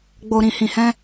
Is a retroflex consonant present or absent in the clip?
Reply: absent